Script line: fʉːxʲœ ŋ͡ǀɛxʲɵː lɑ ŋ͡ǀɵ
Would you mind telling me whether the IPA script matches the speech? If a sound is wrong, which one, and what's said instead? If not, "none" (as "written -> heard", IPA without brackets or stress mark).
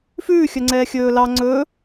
ɛ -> ɛː